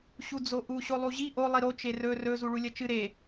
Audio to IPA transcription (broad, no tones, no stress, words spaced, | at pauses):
ɕud͡zoʔu ɕolˠuʑi ʔo lˠiɾo t͡ʃerɵ rɵ zuɭulʲɐt͡ʃɨ ɾe